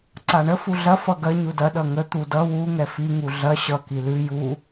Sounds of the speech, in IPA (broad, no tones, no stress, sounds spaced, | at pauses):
ǀ a ɳ ə f u ɮ ɐ f ʌ ɡ ɐ ɲ u d ɐ ɗ ʌ ŋ ə t̪ u d ʌ w u ŋ ɛ f i ŋ u ɮ ɐ ɕ ʌ k i l ʉ j u